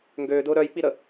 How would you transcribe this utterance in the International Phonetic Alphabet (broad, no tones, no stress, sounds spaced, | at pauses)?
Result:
ŋ ɡ øː d ʊː ɾ œ j k͡p i ɾ ə